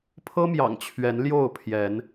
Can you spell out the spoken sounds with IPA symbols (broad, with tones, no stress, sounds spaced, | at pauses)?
pʰ ɤ˦ m j ɑ̰˨˩ ŋ t͡ɕʰ ɥ ɛ˨˦ n l j o˥˨ ʊ̯ pʰ j ɛ˨˦ n